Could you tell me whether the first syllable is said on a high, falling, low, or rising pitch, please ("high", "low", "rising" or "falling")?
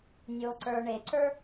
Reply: low